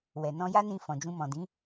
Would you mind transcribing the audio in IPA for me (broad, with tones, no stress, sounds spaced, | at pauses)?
w ɛ˨ n ɔ̃˧ j a˦ n ĩ˧ f ɔ̃˨ d͡ʒ ũ˧ m ɔ̃˨ d ĩ˨˦